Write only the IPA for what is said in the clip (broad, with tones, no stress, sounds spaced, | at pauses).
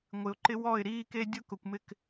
ŋʷ ɪ˨ ʊ̯ ǃ ɪ˦ w ɔ˦˨ ɪ̯ ɾ iː˦ k e˦ dʲ ʊ˦ k ʊ˨ kʷ m ɪ˦˨ k